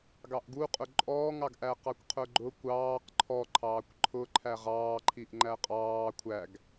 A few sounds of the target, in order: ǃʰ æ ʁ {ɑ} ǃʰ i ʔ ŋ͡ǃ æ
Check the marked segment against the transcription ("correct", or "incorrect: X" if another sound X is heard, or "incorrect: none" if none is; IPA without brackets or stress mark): incorrect: ɑː